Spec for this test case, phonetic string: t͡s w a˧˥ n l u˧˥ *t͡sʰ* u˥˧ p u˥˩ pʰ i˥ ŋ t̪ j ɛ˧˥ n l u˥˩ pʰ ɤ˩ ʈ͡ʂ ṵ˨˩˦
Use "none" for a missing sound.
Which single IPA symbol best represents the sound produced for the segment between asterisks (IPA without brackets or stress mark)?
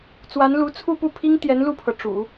t͡sʰ